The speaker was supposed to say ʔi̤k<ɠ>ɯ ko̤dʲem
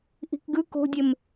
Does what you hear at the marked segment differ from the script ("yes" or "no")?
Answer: yes